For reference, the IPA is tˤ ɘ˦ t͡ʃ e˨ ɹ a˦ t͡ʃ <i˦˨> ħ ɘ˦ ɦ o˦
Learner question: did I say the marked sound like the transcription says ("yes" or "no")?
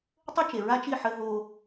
yes